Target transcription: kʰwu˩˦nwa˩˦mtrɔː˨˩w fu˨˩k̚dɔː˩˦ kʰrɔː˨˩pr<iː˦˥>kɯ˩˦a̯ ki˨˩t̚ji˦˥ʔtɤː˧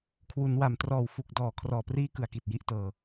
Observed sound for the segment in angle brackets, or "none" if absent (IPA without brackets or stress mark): iː˦˥